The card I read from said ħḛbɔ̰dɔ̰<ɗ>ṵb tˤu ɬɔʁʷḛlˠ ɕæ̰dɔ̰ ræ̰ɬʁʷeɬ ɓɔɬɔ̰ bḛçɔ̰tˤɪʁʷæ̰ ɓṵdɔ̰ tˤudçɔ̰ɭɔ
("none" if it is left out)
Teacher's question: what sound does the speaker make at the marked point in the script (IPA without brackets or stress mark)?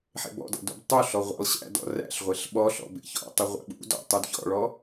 d